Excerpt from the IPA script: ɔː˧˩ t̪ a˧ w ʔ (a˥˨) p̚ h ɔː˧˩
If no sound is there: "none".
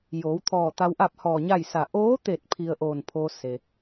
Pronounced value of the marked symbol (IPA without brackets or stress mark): a˥˨